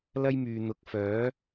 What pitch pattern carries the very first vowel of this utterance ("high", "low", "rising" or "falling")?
high